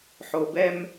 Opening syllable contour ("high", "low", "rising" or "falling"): low